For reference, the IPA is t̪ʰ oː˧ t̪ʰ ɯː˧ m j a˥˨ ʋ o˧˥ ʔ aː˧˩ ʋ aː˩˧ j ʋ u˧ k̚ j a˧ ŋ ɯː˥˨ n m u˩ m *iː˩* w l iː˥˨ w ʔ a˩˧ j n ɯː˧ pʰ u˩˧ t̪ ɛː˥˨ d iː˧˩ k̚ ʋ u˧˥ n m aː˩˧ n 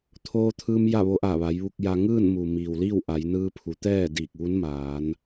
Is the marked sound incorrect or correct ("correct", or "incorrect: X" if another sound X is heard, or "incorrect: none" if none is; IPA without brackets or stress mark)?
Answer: correct